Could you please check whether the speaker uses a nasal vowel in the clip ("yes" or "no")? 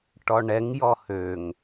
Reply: no